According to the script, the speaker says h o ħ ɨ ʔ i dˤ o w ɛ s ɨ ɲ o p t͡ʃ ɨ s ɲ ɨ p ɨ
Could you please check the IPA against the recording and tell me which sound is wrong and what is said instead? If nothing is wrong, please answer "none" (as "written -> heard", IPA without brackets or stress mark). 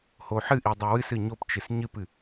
ɛ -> ɨ